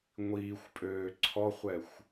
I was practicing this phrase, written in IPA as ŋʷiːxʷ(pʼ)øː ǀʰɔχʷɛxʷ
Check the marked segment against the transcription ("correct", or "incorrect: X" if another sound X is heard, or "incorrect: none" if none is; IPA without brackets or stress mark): correct